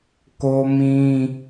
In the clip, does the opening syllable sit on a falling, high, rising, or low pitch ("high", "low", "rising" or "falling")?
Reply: high